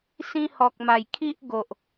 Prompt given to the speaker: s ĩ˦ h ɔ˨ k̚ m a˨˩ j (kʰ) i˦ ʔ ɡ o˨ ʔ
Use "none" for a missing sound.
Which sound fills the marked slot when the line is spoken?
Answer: kʰ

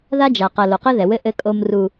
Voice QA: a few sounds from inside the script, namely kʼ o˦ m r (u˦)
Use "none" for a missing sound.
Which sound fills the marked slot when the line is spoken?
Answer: u˦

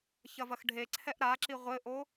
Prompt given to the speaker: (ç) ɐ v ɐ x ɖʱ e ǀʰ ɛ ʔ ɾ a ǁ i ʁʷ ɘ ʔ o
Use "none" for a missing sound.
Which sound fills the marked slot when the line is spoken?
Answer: ç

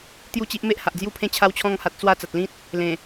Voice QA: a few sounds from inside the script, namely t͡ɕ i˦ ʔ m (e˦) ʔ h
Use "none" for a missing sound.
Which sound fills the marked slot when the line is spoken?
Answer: e˦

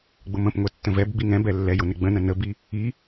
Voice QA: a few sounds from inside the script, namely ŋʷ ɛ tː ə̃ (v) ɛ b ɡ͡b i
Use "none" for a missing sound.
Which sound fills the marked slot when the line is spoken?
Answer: v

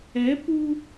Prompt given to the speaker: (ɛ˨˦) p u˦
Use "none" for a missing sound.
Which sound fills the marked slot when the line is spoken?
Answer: ɛ˨˦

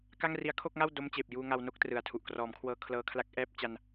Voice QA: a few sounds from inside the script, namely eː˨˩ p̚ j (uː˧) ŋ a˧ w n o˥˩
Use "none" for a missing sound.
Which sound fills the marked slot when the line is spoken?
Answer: uː˧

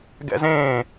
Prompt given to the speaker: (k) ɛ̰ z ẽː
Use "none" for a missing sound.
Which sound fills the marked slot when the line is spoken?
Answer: ɡ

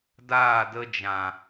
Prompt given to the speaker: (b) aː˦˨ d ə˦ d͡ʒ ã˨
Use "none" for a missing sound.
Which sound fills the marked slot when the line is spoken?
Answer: d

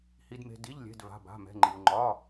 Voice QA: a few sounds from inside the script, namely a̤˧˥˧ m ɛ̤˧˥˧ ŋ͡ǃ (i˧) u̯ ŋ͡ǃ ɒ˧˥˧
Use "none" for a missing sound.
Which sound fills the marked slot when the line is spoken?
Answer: i˧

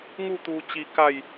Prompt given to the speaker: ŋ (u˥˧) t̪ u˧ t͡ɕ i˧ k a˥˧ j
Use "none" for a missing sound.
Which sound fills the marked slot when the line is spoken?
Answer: u˥˧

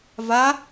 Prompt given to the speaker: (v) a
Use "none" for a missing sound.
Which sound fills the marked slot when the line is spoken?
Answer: v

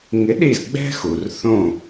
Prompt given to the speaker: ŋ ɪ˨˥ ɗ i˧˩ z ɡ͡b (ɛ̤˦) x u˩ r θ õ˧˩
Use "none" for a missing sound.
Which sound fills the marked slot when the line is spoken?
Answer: ɛ̤˦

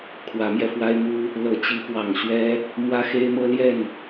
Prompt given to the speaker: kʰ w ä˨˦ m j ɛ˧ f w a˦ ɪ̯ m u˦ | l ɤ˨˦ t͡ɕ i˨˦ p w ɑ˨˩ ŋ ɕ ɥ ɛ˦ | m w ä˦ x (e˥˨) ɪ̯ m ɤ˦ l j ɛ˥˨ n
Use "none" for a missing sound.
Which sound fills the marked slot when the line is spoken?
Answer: e˦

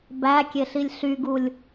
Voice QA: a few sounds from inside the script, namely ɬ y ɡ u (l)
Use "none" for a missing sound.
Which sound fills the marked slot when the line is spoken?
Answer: lʲ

